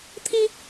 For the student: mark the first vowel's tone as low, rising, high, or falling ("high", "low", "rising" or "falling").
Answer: high